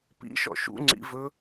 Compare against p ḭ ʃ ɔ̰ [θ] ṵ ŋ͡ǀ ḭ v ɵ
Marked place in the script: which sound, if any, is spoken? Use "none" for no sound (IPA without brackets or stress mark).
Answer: ʃ